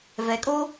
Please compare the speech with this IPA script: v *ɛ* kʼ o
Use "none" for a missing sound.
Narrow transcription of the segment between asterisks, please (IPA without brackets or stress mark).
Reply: ɛ